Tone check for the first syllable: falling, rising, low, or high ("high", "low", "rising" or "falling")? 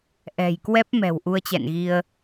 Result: low